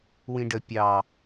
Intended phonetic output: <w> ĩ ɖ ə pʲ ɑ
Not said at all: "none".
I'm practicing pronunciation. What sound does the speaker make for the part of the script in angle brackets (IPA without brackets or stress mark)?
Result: w